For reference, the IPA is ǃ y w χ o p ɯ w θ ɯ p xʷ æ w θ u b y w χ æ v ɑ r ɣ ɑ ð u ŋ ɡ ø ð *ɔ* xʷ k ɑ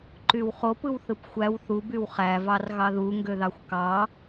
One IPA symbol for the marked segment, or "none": ɑ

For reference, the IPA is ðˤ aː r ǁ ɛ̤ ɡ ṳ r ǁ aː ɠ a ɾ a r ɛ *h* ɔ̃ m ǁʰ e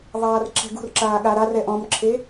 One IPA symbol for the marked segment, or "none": ʔ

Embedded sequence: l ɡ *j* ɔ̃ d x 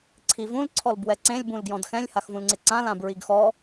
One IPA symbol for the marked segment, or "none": j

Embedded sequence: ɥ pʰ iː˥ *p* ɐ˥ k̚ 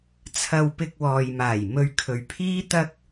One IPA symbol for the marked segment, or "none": t̪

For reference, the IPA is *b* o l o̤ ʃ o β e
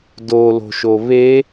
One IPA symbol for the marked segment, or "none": d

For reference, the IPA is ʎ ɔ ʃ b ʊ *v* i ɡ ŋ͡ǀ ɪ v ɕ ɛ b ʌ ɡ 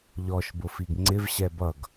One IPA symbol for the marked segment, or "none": f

